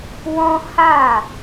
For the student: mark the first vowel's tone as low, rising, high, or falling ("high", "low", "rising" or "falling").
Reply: high